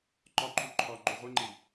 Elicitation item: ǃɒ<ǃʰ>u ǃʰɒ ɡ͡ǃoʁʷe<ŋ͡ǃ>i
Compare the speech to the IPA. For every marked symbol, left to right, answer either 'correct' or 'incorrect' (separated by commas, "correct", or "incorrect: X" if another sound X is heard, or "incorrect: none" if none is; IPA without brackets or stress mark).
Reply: correct, correct